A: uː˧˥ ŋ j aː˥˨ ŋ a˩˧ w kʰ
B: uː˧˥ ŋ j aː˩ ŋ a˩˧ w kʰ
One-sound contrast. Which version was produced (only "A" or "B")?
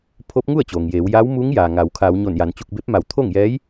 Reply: B